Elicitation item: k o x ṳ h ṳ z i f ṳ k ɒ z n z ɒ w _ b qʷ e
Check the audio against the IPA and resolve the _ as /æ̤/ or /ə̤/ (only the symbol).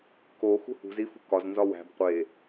æ̤